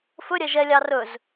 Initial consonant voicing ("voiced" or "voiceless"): voiceless